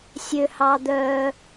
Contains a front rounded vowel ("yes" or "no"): yes